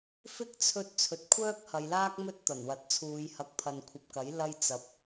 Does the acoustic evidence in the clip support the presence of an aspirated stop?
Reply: yes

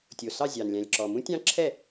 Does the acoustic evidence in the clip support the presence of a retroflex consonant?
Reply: no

